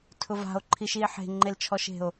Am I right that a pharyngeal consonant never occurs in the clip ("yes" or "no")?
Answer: no